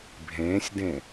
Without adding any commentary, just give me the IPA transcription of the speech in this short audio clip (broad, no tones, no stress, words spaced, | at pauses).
bʱẽːsʲdẽ